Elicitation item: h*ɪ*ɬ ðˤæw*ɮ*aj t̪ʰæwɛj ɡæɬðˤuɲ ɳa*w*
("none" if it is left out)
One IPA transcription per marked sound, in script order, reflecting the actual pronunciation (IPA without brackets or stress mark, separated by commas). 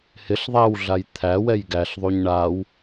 ɪ, ɮ, w